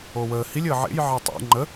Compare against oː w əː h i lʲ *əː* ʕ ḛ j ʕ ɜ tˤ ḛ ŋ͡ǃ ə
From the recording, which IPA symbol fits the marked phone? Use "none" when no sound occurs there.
əː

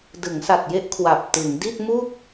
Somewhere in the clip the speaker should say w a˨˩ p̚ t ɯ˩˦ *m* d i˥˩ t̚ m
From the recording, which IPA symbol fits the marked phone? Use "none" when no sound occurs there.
ŋ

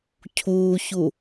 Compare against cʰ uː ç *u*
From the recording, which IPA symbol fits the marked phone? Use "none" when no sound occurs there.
u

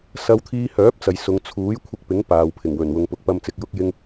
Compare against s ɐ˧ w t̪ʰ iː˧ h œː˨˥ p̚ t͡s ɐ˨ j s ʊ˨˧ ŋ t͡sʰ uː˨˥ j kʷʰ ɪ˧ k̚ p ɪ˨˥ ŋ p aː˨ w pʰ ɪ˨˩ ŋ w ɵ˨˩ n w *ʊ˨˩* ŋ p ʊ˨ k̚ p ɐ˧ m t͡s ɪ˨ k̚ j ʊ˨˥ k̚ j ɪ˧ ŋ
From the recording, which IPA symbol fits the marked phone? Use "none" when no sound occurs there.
ʊ˨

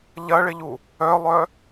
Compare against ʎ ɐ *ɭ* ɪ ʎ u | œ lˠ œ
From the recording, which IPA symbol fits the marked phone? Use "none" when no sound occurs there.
ɭ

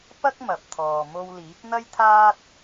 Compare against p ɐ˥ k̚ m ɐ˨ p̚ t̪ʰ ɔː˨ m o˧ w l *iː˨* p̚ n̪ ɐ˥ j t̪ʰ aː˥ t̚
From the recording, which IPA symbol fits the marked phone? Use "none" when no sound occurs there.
iː˨˥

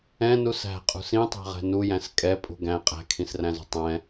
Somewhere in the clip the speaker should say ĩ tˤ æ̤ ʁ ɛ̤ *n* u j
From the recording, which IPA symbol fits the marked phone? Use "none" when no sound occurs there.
n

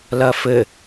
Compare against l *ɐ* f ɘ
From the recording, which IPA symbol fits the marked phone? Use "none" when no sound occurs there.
ɐ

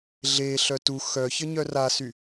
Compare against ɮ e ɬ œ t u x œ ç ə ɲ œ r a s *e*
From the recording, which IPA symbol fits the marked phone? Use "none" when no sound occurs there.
y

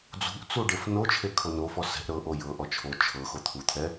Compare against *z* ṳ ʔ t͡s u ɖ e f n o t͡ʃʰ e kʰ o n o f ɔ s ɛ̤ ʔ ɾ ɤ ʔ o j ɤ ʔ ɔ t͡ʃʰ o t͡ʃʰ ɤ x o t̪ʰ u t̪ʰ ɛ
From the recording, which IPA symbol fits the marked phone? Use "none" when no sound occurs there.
d͡z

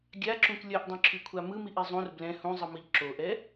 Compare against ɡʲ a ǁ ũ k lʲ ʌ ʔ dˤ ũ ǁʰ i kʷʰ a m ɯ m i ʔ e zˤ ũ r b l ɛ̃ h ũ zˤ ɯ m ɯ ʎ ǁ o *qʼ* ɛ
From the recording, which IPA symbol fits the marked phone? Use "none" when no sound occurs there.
ʔ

